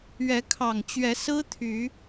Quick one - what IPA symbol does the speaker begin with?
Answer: ɥ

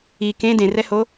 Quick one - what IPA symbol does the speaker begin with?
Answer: i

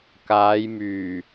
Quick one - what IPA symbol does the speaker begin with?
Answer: k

